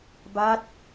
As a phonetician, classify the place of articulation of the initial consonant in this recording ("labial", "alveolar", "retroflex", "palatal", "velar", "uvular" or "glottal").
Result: labial